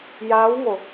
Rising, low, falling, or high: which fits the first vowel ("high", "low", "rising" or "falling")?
rising